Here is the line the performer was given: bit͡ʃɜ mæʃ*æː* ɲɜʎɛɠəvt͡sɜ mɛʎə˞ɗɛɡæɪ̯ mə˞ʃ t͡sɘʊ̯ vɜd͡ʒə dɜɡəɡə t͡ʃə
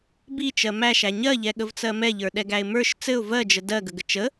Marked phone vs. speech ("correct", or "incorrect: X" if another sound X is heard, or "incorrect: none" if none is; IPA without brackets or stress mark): incorrect: æ